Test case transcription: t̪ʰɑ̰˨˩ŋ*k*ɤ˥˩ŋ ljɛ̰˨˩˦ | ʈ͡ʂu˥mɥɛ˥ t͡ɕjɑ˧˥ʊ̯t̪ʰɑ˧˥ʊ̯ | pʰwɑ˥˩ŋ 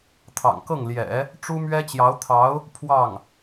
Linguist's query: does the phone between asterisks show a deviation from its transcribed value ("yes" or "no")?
no